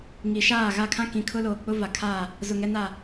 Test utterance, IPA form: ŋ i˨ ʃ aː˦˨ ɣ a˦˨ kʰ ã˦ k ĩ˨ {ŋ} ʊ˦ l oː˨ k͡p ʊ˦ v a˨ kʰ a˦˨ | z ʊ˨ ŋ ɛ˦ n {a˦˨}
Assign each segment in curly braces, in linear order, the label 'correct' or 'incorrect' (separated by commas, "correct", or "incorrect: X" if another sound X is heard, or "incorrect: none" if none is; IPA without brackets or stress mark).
incorrect: kʰ, correct